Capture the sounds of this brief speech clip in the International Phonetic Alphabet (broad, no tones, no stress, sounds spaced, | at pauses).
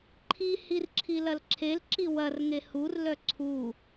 ǃʰ i h i r ǁʰ i l ɐ l ǁʰ e l ǁ i w ɐ r ŋ e h u r l œ ǀʰ u